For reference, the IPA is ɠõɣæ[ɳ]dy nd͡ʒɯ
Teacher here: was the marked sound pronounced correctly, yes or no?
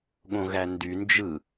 no